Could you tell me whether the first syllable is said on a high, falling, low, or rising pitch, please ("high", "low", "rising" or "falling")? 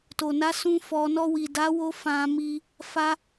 low